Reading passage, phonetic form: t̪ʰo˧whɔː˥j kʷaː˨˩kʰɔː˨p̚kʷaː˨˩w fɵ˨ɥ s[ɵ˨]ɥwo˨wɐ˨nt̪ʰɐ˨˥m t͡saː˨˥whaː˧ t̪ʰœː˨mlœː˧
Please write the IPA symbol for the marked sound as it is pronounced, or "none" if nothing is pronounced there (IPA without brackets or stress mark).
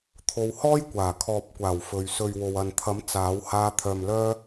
ɵ˨